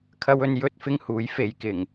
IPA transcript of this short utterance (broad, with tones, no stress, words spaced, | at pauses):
kʰɐ˥wɵ˥n jɵ˥t̚fɪ˥ŋ huː˨˥jfe˨˧j kɪ˨˩ŋ